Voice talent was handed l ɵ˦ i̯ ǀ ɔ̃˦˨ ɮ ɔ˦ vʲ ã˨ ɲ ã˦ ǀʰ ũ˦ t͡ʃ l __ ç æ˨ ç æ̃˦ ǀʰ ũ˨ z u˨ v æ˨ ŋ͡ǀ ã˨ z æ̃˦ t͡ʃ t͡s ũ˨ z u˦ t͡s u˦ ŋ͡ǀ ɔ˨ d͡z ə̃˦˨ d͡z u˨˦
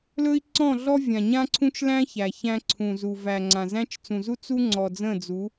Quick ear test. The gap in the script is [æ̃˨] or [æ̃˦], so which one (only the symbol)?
æ̃˦